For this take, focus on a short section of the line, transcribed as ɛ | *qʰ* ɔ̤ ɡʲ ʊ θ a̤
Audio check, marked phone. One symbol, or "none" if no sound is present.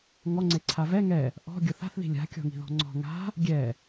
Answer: ʔ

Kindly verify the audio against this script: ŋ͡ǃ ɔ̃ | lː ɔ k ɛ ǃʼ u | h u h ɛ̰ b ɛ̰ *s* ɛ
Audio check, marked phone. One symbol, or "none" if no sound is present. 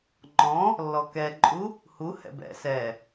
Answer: s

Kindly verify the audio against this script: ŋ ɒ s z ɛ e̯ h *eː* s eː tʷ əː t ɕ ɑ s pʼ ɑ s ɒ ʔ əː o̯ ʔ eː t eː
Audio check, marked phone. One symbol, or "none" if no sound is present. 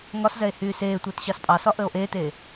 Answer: yː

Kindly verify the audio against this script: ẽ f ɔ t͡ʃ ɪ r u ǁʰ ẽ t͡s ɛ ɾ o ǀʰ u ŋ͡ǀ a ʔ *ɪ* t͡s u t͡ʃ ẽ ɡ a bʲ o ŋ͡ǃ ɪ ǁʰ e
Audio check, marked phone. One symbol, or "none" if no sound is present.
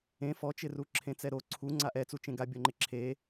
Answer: ɛ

